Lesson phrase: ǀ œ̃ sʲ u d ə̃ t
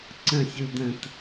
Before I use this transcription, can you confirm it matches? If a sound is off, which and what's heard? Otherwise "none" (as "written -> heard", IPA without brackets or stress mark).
œ̃ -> ə̃